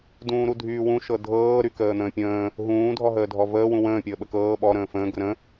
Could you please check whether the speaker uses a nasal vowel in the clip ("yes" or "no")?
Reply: yes